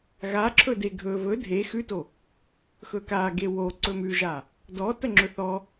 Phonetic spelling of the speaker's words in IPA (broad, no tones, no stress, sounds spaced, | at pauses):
ɣ a ǁʰ ɵ d e ɡʱ ɵ v ɵ dʱ e x ʉ t o | x ɵ k a ɡ e w o ǀ ɵ m ʉ ʒ a | d ɔ t ə ŋ͡ǁ ɵ θ ɔ